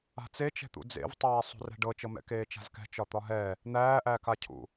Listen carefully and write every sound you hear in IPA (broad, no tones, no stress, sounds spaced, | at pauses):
a̤ t͡s e t͡ʃ ɛ̤ t̪ ṵ d͡z ḛ v tˤ æː sˤ ṳ r ɛ̤ ɖ ɤ t͡ʃ ɤ m ɛ̰ k eː t͡ʃ a̤ z k ɛ̤ t͡ʃ ɒ t̪ ɒ ɦ ɛ | n̪ æː ʔ æː k a cʰ ṵ